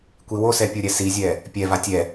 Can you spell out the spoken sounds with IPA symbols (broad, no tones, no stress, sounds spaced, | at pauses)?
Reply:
kʷ i w o s ɛ pʲ o ɾʲ ɛ s i zʲ ɛ | pʲ ɛ v a tʲ ɛ